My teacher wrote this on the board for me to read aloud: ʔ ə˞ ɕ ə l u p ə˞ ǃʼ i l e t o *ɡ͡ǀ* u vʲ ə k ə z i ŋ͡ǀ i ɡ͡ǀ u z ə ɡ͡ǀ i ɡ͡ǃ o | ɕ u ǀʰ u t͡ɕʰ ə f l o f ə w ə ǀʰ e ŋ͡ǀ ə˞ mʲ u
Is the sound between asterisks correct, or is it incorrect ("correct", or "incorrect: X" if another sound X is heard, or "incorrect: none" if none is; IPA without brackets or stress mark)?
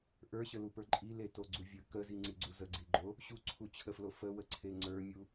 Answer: correct